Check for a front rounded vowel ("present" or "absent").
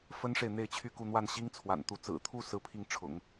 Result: present